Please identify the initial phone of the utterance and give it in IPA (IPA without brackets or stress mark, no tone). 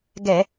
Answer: ɡ